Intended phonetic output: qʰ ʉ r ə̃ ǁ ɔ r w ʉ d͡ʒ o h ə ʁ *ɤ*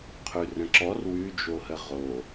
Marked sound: incorrect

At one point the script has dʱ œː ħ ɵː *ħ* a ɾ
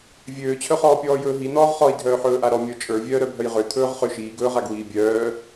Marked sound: incorrect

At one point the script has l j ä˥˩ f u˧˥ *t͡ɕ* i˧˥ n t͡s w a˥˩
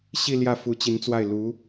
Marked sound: correct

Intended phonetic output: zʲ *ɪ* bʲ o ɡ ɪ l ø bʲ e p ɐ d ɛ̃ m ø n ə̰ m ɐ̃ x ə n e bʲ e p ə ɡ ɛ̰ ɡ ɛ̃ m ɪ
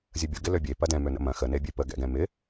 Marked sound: incorrect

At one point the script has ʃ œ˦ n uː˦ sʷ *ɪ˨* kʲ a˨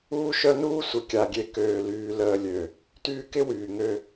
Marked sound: correct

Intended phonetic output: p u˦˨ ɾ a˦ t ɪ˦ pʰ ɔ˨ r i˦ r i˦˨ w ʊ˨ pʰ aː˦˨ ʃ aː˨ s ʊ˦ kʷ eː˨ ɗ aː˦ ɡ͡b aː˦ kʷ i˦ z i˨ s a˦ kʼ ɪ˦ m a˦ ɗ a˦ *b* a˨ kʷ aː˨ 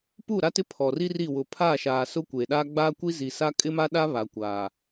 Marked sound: incorrect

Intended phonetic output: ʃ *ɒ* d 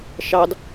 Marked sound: incorrect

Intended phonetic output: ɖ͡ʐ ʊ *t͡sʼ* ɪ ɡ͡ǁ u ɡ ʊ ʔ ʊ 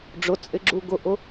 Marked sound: correct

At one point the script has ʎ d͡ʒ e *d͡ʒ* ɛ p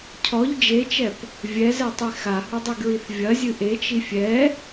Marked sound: incorrect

